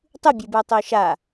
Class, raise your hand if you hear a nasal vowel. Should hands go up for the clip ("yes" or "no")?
no